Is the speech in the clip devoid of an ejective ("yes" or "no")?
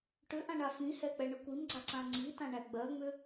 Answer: yes